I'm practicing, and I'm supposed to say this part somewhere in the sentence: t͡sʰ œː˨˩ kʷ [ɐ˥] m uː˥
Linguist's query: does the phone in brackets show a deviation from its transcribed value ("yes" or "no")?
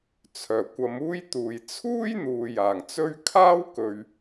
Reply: yes